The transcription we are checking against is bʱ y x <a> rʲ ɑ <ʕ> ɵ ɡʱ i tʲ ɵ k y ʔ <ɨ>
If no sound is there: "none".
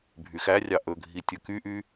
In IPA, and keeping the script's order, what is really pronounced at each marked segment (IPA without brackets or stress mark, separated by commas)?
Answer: æ, ʔ, y